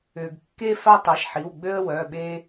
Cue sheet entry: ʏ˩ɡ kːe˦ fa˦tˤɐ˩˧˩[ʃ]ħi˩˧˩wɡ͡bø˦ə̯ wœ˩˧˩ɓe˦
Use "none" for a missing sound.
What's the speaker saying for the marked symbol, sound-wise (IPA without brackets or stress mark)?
ʃ